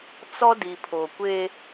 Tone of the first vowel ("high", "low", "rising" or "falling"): high